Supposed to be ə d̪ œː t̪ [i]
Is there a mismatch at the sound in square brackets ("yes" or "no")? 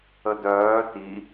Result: no